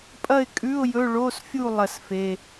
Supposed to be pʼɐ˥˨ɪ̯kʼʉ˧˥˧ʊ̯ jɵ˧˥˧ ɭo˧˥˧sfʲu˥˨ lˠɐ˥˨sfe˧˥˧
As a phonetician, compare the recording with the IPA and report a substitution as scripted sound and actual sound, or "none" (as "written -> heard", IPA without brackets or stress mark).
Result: none